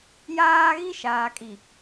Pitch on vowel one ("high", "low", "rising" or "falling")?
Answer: high